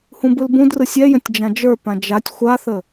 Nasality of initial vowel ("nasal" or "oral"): nasal